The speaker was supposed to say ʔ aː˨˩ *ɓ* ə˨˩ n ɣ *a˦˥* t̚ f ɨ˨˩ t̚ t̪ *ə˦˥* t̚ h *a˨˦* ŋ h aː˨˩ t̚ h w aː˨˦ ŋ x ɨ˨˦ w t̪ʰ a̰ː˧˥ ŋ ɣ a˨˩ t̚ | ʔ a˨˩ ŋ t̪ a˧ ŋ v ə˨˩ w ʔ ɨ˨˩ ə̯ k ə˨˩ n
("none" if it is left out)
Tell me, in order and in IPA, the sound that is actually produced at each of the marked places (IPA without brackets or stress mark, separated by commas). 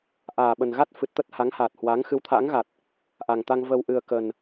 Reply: ɓ, a˦˥, ə˦˥, a˨˦